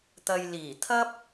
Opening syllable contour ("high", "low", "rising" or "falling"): low